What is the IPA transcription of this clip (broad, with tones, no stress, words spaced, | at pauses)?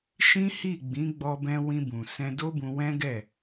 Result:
ʃĩ˦hi˦˨ɡ͡bĩ˨˦ ɡ͡bɔ˧bɛ̃˧wĩ˧bũ˨ sɛ̃˧do˦bũ˧ wɛ̃˦ɡɛ˦˨